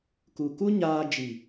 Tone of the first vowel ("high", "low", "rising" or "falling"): low